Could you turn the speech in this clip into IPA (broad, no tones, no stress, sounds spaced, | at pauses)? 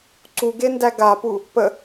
ǀ u ɡ e n d æ ɡ a p u | p ə